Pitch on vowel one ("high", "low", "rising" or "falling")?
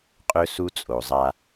high